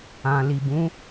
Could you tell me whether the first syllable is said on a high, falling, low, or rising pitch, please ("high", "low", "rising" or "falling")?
low